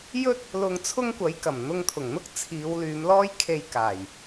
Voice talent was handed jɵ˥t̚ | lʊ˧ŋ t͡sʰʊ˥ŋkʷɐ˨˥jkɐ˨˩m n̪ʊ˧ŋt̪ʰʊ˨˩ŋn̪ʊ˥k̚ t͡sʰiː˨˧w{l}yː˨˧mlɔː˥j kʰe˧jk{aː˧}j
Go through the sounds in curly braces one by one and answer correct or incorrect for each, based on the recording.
correct, incorrect: aː˨˩

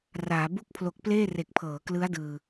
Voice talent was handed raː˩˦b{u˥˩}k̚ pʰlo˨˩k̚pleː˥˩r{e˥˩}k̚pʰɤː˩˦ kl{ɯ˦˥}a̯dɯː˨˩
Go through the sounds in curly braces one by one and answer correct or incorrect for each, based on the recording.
correct, incorrect: e˨˩, correct

